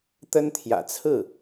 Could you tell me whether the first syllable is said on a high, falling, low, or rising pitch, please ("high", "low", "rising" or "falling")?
high